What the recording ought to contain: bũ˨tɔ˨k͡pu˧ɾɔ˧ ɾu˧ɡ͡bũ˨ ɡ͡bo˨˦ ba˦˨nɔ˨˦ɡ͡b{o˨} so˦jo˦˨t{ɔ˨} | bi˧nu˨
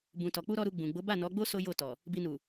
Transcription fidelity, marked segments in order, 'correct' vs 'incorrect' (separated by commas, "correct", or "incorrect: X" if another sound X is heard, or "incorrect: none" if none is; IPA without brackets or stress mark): incorrect: o˦, correct